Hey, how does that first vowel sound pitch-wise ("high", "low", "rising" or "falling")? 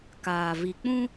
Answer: low